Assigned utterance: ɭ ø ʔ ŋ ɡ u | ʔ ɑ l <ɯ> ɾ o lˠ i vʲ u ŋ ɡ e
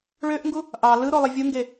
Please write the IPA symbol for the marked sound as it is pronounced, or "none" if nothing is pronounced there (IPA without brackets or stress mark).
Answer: ɯ